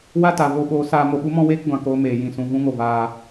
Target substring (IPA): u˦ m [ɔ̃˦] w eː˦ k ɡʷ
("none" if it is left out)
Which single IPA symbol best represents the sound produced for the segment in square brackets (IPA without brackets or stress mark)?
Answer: ɔ̃˦